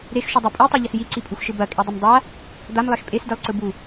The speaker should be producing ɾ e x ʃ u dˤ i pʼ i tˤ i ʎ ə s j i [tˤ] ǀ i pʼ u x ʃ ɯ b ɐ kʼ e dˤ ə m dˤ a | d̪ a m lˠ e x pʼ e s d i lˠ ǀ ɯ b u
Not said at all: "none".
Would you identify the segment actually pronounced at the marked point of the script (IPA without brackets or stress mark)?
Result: none